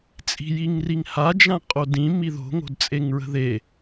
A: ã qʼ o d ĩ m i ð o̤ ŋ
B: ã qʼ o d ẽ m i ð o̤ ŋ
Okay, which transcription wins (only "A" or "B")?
A